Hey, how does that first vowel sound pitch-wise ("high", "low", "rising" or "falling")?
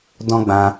high